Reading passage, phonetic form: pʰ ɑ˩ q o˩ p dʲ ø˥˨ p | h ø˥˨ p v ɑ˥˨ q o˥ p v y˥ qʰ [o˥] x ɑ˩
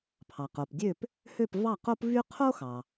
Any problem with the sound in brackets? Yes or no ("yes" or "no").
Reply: no